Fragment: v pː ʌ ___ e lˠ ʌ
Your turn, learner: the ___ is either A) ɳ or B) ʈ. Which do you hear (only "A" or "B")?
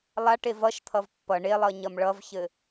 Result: A